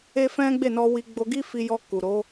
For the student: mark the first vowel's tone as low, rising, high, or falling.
high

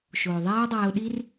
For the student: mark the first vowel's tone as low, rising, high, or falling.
low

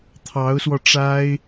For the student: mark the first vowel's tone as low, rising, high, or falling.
rising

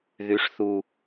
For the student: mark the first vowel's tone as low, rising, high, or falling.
rising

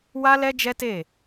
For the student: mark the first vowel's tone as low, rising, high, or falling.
high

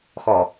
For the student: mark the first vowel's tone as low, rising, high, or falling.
low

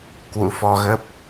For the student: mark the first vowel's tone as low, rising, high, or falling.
rising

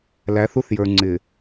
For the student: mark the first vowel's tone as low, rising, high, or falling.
rising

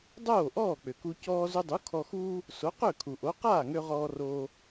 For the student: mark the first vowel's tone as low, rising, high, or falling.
falling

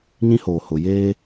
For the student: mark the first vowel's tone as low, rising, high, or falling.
high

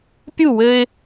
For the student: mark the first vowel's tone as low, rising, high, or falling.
falling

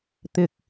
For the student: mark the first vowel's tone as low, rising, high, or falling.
low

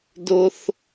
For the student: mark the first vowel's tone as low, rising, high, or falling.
high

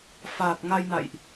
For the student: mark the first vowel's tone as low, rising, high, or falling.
low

